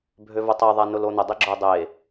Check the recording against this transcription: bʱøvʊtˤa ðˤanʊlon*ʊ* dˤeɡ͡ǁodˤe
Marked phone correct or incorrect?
correct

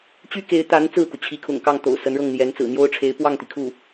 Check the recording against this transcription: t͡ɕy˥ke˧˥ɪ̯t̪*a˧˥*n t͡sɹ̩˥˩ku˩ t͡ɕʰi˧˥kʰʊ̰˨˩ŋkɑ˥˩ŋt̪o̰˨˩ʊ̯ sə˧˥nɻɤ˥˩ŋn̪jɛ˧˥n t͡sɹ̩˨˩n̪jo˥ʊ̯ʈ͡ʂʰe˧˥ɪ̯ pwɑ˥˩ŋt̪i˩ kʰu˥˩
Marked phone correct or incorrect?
correct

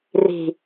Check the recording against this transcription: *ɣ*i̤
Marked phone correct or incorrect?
incorrect: r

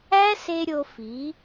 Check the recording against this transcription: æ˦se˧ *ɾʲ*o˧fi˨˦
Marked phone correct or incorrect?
correct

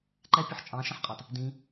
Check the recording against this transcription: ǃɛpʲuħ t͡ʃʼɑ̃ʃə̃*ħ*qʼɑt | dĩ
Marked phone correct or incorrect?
correct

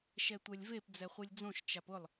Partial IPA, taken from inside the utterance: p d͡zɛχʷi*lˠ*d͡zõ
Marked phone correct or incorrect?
incorrect: lʲ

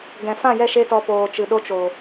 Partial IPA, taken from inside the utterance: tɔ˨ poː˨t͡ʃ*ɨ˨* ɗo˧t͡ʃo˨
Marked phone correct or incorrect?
correct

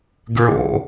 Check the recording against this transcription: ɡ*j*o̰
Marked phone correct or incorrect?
incorrect: ɹ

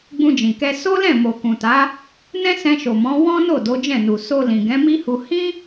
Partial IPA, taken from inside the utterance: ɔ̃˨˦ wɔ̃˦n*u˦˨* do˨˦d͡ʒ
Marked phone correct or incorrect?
incorrect: o˦˨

